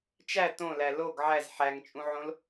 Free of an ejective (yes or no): no